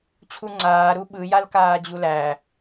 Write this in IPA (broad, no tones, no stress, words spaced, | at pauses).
t͡ɕʰuŋ͡ǀaː ɾuɓɯ jalkaːd͡ʑulæ